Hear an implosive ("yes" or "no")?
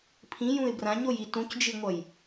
no